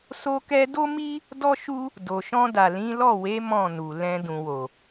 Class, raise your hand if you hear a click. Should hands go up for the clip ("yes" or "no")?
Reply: no